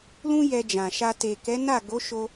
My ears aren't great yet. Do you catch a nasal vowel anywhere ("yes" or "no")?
yes